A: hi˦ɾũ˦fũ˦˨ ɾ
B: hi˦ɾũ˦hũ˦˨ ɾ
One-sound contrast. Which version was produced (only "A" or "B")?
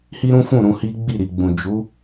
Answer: A